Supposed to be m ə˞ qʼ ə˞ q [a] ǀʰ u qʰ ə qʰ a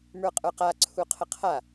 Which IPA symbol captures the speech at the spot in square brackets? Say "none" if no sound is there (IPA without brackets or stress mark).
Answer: a